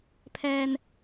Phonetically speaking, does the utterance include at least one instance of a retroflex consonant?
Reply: no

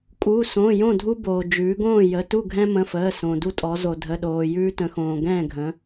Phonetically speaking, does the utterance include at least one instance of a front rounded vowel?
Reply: no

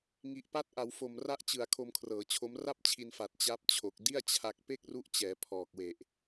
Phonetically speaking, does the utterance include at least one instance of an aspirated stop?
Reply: yes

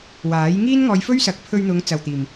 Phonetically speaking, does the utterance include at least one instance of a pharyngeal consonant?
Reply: no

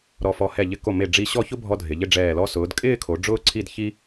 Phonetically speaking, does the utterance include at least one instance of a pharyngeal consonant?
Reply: no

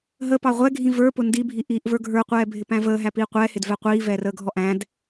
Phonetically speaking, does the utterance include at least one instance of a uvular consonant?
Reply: yes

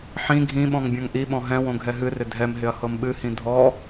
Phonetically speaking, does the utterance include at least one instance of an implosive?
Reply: yes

